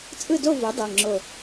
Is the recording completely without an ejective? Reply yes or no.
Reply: no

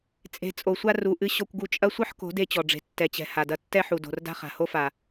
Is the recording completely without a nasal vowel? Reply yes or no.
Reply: yes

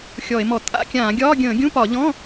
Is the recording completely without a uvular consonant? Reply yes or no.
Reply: yes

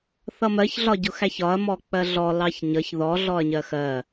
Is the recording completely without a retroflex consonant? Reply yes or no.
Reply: yes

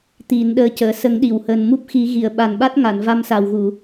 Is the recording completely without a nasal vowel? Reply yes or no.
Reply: yes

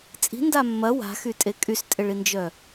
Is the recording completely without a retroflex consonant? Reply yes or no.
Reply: no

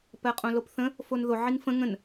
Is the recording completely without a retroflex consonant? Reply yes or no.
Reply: yes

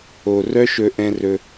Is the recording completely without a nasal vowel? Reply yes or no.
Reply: no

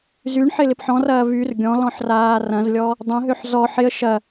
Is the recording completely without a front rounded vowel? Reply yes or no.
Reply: no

